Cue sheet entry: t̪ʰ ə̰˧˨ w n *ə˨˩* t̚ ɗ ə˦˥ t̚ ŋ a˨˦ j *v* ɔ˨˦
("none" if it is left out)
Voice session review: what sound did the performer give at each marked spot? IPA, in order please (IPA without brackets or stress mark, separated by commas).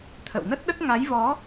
ə˦˥, v